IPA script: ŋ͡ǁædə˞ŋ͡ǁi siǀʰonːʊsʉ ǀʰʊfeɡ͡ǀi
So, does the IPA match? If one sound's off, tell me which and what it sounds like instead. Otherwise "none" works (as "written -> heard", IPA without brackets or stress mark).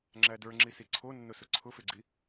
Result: ʉ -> ʊ